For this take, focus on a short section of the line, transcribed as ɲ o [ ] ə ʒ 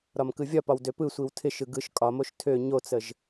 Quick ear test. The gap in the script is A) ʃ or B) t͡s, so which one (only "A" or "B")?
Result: B